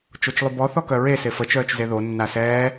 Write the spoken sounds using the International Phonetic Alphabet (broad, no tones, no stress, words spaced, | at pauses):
t͡ʃot͡ʃlˠybɔ θɔkœɹe sefə t͡ʃœːt͡ʃzeðo nːasɛː